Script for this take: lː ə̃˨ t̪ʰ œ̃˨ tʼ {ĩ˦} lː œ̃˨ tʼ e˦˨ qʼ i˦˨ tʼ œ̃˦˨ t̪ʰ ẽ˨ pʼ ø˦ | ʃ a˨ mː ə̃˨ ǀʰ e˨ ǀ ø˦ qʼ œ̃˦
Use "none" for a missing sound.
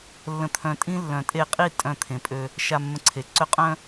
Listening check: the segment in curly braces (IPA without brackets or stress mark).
ĩ˦